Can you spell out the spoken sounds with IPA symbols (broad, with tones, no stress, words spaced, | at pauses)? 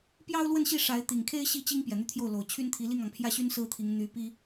pjɑ˥ʊ̯lwə˥˧nɕi˥˩ ʂa˧˥ɪ̯ t̪i˨˩ŋkʰe˥ɪ̯ ɕi˥ t͡ɕi˥ŋ pjɛ˨˩n̪y˥˧t̪ʰjo˥˩ʊ̯ lo˨˩ʊ̯ t͡ɕʰy˥nt̪ʰi˧˥ li˥˩ŋɑ˩ŋpʰjä˥˩ɕy˥n sɹ̩˥t̪ʰi˧˥ŋ n̪y˧˥pi˥